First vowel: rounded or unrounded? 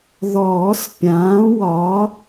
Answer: rounded